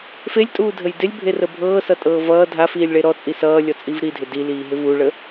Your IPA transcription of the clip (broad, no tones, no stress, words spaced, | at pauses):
felʲtʼuːdʱəj dɪlʲbʱerə bʱɤːsʌtʼɤː vʌː dʱafiːlʲɭe ɾɔt͡sʼi sʌːlʲɔt͡sʼiv ɾidʱɪ diliːɦɪ vuɭə